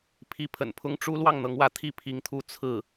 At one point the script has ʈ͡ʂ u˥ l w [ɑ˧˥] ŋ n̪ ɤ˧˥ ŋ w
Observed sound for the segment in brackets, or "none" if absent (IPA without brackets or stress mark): ɑ˥˩